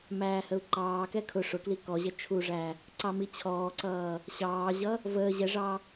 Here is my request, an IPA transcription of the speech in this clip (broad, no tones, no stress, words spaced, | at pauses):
mæːhəu̯ǃɑːkɛ kʰʊ ʂʊkli kɔʑə t͡ʃʰuʐæ | ǀɑmit͡ɕʰɔːǀʌː | ɕɑːʑʌ | vəː ʑɛʐɑ